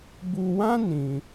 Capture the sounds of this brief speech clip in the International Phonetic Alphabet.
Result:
bu˧wã˦ nĩ˧

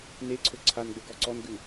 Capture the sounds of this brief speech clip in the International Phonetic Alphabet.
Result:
neǀʰɵ ǀʰanɡ͡bɵ ɡɔǀɔnɡʉ

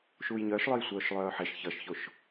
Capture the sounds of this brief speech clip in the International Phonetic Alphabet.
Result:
ʃuːjɲœːʃlˠœj sʷœːʃlˠœːħeʃ çʌʃçoʃ

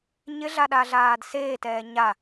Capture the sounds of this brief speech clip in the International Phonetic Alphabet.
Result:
ɲɪɮaɗaɮaːd seːtɛː ɲa

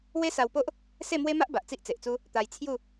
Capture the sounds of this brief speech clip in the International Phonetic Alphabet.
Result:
we˦sa˧wpo˦ʔ | se˥˧mwe˦ma˦ʔ ba˨ʔt͡si˦ʔt͡se˨ʔt͡su˦ | t̪a˧j t͡sʰju˥˧

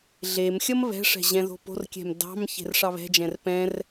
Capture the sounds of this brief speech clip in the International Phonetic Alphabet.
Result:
ɮemxʲʌm βɛ̤ʂɛ̤ ʑɛ̃ðo̤po̤rkʲɛ̤m dɑ̤m çe̤rʂɑβɛ̤d͡ʒɛ̃r pɛ̃r

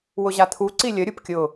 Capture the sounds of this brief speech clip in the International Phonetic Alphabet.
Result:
wʊʑat̪ʰu ǀilʲə ɾʲupkʲʊ

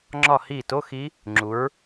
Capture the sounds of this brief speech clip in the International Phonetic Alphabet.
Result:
ŋ͡ǁɒ˦˨hi˦˨to˧˥˧xi˦˥ | ŋ͡ǁu˨˦ɹ

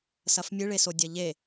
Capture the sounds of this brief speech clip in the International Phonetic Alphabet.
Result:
sɐfmʲɨɭeso dʲɐʎe

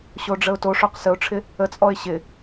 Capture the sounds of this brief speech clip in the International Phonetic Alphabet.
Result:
ɕoɖ͡ʐəʊ̯toʂoq səʊ̯ʈ͡ʂʰɪ | ət͡sʼɔɪ̯ ɕɪ

